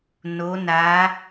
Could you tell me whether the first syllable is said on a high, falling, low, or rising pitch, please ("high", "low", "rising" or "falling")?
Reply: rising